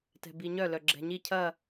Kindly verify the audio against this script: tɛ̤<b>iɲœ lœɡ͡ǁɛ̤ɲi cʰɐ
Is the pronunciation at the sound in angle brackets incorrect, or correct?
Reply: correct